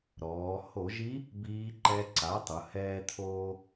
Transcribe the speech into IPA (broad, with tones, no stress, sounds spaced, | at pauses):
ɾ ɔː˩˧ h o˧˩˧ ʒ i˧˥ | b iː˧˥ ǃ ɛ˧˥ ǀ a˩˥ tˤ ʊ˩˧ h ɛː˧ t̪ʰ oː˧